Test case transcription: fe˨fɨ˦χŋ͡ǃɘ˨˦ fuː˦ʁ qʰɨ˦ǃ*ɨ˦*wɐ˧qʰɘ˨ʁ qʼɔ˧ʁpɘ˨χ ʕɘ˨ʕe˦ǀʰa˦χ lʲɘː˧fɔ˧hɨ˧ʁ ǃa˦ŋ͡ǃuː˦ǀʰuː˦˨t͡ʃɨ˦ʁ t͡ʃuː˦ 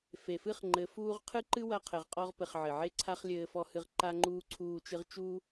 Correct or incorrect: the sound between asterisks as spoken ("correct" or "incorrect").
correct